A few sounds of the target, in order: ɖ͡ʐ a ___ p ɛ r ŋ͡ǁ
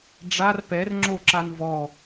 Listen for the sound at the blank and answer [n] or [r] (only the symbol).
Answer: r